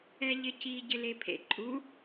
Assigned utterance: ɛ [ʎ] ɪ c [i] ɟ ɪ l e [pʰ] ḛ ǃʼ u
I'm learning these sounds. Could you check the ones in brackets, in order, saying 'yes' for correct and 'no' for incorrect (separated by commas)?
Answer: yes, yes, yes